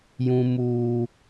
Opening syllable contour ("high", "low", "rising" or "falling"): high